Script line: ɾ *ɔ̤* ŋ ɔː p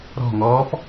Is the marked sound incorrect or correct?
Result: correct